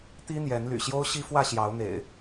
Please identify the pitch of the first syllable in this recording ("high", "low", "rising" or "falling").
high